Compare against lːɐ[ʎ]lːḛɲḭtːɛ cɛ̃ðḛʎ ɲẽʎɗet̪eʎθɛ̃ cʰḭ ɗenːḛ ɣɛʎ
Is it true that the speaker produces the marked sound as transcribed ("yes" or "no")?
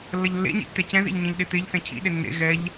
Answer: yes